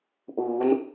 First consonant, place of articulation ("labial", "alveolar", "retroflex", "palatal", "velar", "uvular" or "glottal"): glottal